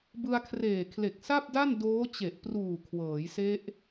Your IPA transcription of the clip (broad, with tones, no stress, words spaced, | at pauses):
bɯ˧a̯kʰreː˨˩kʰle˨˩k̚ sa˥˩p̚da˥˩n doː˦˥t͡ɕe˨˩ʔpruː˨˩ kʰwɤː˩˦jse˦˥ʔ